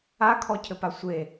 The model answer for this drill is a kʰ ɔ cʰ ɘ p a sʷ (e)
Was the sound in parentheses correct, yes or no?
yes